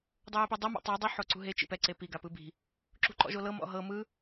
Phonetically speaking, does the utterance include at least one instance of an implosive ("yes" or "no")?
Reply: no